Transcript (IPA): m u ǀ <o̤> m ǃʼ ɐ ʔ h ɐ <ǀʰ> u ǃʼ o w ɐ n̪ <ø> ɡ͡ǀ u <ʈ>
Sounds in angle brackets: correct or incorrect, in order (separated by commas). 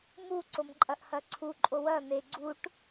incorrect, correct, incorrect, correct